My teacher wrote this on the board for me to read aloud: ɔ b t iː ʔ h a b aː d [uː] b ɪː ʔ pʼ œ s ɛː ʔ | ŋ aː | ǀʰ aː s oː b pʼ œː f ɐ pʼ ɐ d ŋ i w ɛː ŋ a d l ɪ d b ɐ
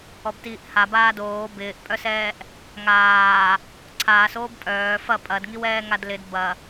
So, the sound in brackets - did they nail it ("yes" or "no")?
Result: no